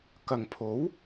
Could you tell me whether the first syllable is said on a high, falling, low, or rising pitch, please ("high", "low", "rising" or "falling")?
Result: low